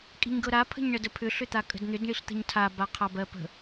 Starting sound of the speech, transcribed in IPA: kʼ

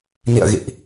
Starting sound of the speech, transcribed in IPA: n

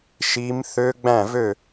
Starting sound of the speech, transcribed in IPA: ʃ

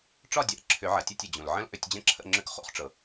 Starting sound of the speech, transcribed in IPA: ʈ͡ʂ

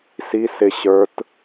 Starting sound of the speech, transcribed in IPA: s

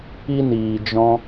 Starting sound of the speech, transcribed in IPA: i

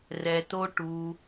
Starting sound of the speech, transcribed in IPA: r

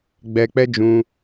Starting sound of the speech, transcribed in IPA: ɡ͡b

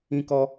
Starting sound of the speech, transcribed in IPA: ĩ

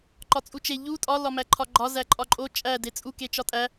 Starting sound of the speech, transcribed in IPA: ǃ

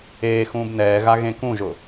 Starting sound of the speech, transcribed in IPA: eː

